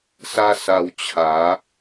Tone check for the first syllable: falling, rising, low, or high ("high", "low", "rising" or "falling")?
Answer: high